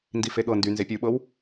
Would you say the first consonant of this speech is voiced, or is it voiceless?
voiced